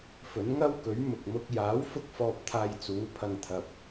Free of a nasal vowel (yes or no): yes